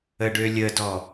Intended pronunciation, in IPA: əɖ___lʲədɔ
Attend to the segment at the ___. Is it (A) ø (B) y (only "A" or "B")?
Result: A